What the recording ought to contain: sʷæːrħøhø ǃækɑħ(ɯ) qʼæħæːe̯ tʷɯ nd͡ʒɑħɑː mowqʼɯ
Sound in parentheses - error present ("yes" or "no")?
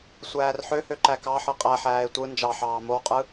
no